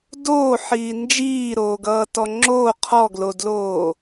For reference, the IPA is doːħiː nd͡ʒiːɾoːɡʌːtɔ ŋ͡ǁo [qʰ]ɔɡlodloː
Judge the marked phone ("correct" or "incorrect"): correct